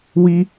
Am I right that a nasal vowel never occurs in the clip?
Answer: yes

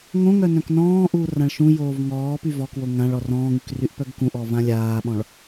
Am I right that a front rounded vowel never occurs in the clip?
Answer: no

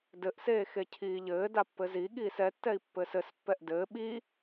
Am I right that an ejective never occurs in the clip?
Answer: yes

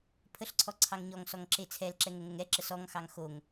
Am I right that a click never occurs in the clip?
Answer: no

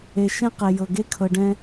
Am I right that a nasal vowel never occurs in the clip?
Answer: no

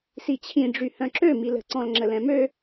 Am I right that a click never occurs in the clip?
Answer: no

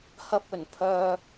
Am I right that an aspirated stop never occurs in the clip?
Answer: no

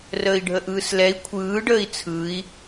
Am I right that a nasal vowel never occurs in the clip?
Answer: yes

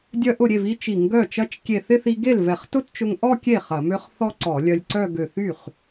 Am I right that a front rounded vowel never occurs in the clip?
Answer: no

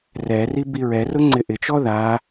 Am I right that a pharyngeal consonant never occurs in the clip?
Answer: yes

